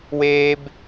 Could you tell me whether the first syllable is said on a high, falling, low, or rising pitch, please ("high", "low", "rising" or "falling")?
high